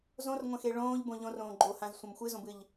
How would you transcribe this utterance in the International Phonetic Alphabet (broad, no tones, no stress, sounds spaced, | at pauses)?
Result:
z õ r ŋʷ ɐ̃ x e ɭ õː ʎ b õ ʎ õ r õː ɡ͡ǃ o h ã z sʷ ɐ̃ m xʷ ɨ z õ b ɨ ʎ